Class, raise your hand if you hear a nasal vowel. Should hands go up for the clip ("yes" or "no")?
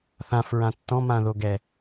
yes